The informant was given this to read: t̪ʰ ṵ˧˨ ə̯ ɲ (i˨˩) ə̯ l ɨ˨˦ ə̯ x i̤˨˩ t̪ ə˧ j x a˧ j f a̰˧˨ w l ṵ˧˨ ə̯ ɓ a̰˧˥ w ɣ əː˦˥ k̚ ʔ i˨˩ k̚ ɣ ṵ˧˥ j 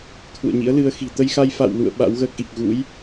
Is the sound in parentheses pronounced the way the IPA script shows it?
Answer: no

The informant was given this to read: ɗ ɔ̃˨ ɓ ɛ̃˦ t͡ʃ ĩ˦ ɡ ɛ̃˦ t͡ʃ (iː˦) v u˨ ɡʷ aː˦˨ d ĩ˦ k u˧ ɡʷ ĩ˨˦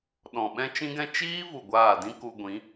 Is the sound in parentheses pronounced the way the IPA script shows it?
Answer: yes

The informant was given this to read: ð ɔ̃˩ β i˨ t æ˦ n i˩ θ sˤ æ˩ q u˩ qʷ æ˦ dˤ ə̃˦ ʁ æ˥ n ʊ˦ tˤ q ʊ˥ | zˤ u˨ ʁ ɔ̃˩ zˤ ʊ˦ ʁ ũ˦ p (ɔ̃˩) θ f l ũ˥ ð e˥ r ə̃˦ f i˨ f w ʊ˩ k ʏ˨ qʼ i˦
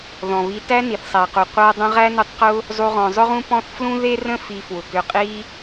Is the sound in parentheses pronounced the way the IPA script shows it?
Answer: no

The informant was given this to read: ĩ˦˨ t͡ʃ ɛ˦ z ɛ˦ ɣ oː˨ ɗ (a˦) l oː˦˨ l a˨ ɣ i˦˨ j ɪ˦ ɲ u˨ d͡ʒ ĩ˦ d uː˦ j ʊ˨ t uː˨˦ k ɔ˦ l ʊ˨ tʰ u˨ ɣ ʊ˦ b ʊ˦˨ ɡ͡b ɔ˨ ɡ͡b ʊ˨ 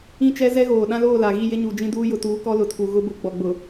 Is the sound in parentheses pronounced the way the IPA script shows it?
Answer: no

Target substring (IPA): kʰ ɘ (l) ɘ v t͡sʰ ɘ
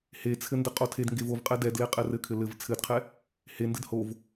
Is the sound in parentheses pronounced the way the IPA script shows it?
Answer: yes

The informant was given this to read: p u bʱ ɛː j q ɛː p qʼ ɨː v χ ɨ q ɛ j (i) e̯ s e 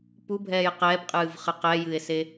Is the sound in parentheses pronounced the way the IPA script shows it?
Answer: no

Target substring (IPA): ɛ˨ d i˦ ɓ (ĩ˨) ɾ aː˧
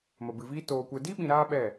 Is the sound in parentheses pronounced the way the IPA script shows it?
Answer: yes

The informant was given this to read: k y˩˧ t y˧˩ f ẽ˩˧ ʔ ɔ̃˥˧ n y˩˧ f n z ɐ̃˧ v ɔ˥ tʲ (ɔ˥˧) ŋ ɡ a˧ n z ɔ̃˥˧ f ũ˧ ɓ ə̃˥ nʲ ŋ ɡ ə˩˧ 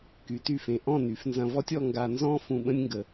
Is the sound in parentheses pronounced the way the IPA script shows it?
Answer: yes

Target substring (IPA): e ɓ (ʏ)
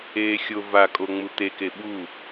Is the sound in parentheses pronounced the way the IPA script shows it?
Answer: no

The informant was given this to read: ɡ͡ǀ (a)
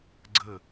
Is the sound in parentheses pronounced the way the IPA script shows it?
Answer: no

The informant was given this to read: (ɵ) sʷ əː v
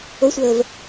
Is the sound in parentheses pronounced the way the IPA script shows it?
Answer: no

